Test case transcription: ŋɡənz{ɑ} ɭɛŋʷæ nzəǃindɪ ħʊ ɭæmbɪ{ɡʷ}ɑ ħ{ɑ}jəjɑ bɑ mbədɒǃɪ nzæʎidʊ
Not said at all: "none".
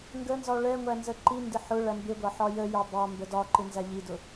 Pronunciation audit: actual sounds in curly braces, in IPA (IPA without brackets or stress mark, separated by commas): ɒ, ɡʷ, ɒ